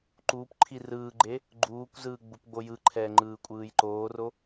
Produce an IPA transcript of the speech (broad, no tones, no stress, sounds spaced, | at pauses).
ǃ uː p ǃʰ i r ɯː ɡ͡ǃ e | ɡ͡ǃ uː kʷ z ɯː ɡ͡b u p ɡ͡b o j ɯ ǃʰ ɛː ŋ͡ǃ ɯː kʷʼ ɯː j ǃ oː r o